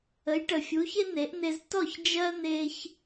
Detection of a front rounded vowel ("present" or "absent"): absent